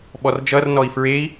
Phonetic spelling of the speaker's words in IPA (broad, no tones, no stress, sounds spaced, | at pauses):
ɓ ɔ r d͡ʒ ʌ r n ɔ i̯ f ɹ e i̯